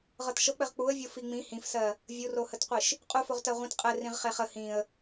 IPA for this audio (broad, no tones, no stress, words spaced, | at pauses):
ʁɤtʃɤk͡pɘʁ k͡puə̯vʲo fiŋ͡mĩ hĩfsɜ | vʲurohətqʷiʃ | qʼufoʁtɜ ʁʷĩt qʼɘ rĩʁχeχə hĩə̯